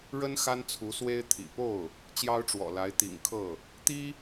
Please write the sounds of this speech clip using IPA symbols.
ɻə˥n xa˥nt͡sʰu˧˥swe˥ɪ̯ t̪ʰḭ˨˩ po˥˩ʊ̯ | t͡ɕjɑ˥ʊ̯ʈ͡ʂwɔ̰˨˩la˧˥ɪ̯ t̪ḭ˨˩ŋkʰɤ˥˩ | t̪i˥

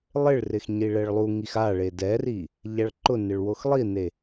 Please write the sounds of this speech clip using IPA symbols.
lˠɪɭrɪx ɲiɭɛɭlˠuŋix aɭe dɛri | ʎaɭǃʊnɪɭ woxlˠine

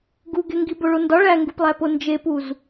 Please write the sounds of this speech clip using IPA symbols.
ɡuɡeŋɡi boɭondɒ ɭæŋɡuplˠæpo nd͡ʒepuz

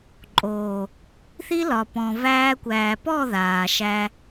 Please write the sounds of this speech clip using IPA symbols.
ǃʼoː˨ | θi˦lɒ˨ pɔ̃˨væː˧kʷæː˨pɔ˦˨ ðaː˨ʃæ˧

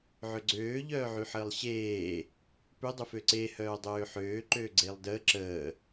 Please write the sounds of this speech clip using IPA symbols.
ʕʏɡ͡ǀøː ʎœːʕyħəːlˠɕeː | pʏ dˤʏføǀe hœːdˤøːħøː ǃøːɡ͡ǀeːlˠdəː ǁəː

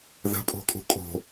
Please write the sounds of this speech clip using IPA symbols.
ðə̤pʼo̤kʼṳ kʼo̤

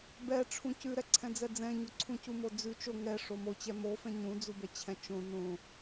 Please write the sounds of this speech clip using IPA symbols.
bɛʈ͡ʂʰũ cʉɾɛǀʰɛ̃d͡zɛ d͡zɛ̃ɲoǀʰũ cumod͡zʉ t͡ʃo ŋɛ ʂomot͡ɕɛ mofɛ̃ ɲũd͡zubɛt͡ɕʰɛ̃ t͡ʃõ nõ

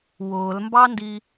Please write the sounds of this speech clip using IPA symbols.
wʊːlmbɑndi

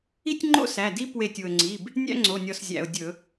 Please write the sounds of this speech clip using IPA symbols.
i˥tʲŋ͡ǃo̰˥sæ˩˧˩ di˥ pwe˧˩tʲu˩ə̯ŋ͡ǀi˩˧˩b | nʲæ̰˥ŋ͡ǀo˩˧˩nʲɔ˧˩s zʲæ̰˩ʊ̯ dʲɵ˧˩˧

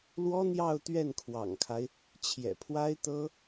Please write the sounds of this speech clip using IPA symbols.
lwɔ˥n̪jɑ˥˧ʊ̯ t̪ɥɛ˥˩nkʰwɑ̰˨˩ŋkʰa˦ɪ̯ | t͡ɕʰjɛ̰˨˩pʰwa˥ɪ̯t̪ɤ˥

